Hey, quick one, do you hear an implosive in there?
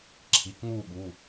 yes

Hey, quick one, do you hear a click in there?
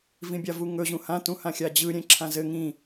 yes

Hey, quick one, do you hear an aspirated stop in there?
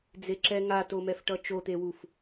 no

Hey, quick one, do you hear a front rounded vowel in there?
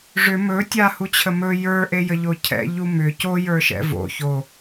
yes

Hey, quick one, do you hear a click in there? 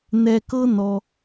no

